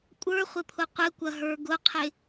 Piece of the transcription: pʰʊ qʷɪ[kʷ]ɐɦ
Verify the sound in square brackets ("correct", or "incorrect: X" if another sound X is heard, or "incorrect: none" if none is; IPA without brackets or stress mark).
correct